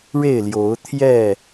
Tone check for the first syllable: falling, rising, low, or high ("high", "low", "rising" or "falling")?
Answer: falling